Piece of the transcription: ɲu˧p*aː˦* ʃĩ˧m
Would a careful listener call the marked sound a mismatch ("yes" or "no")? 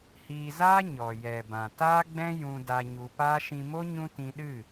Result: no